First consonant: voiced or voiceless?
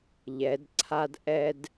voiced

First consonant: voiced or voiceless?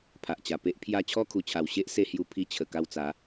voiceless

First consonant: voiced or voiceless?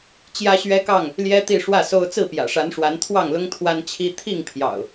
voiceless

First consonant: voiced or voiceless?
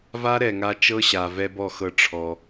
voiced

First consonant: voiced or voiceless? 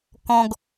voiceless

